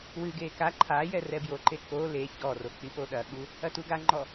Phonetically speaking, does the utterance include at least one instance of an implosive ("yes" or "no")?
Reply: yes